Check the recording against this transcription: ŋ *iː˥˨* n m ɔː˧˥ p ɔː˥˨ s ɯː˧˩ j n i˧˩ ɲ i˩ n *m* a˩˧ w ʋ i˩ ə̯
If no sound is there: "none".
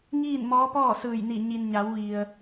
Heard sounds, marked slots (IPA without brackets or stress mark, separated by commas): iː˥˨, ɲ